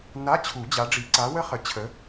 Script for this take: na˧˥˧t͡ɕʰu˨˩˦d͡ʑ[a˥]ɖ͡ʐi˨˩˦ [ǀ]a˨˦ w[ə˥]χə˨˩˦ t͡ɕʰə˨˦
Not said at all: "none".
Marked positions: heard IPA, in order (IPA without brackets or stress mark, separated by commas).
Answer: a˨˦, ǀ, ə˥